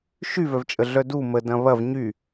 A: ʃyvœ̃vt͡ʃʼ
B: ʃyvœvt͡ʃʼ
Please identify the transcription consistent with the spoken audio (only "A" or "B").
B